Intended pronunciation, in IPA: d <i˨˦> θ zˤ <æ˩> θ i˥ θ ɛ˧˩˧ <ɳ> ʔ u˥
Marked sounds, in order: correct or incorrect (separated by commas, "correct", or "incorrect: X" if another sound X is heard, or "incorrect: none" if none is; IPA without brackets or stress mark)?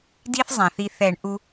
incorrect: i˥, incorrect: æ̃˩, correct